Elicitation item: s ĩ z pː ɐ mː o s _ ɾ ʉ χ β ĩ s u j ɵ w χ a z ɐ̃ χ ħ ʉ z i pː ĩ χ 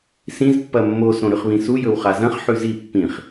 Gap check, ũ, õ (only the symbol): õ